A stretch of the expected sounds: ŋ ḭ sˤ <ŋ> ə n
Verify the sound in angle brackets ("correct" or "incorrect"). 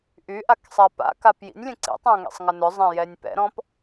correct